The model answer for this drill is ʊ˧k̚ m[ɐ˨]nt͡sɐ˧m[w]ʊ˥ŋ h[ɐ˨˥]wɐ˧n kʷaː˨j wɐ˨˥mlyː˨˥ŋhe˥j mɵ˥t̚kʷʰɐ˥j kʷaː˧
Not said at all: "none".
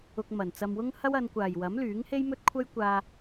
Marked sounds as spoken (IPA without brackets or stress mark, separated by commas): ɐ˨, w, ɐ˥